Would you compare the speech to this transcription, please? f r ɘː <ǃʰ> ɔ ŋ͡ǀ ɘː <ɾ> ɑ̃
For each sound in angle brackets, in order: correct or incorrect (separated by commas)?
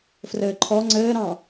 correct, correct